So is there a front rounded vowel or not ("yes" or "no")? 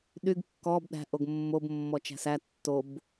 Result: yes